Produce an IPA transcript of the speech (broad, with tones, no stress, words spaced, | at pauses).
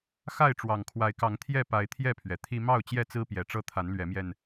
xa˥˨ɪ̯ʈ͡ʂwɑ˨˩ŋkʰwa˨˦ɪ̯kɑ˨˦ŋ t̪ʰjɛ˥˨ pa˨˦ɪ̯t̪ʰjɛ˥˨pʰɥɛ˩ t̪ʰi˦ mɑ˥˨ʊ̯t͡ɕjɛ˥˨t͡sɹ̩˦ pjɛ˨˩ʈ͡ʂɤ˦ t̪ʰa˨˦nlɥɛ˨˦mjɛ˧n